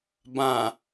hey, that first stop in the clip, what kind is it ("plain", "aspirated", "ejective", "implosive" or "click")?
plain